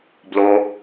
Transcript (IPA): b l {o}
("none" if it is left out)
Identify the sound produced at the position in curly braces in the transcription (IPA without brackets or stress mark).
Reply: o